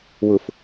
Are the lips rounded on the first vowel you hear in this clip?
yes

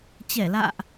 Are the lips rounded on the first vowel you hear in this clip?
no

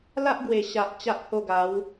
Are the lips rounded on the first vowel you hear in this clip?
no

